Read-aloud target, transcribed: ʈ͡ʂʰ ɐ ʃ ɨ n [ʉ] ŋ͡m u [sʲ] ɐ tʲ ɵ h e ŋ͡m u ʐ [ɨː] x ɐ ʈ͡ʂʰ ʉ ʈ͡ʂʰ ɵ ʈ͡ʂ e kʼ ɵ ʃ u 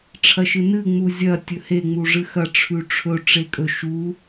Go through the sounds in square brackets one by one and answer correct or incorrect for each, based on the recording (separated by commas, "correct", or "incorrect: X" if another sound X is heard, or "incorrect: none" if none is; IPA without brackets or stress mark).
incorrect: ɨ, incorrect: zʲ, incorrect: ɨ